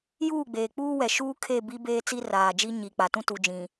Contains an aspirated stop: yes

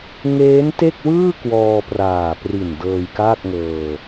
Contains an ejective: no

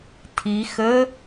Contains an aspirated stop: yes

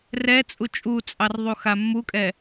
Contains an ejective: yes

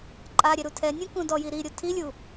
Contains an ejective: yes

